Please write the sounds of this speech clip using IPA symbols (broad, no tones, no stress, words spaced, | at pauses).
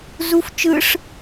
zuf t͡ʃɯʂ